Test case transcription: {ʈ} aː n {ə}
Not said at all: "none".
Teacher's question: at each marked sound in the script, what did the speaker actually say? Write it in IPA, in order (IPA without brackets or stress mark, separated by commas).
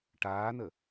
ʈ, ə